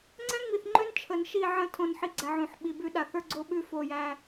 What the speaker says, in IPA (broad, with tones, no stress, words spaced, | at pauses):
ŋ͡ǀɛ̃˦ŋ͡mi˨θŋ͡ǃø˦n t͡ʃʰə˨nʃi˦˨ʕə̃˦ tʰõ˦˨nħi˦ɡ͡ǀæ˨ʕõ˨ħ ɓi˨bʉ˦ɗa˨θ ə˞˦ɡ͡ǀo˦ɓʉ˦˨ fo˦˨jæ˦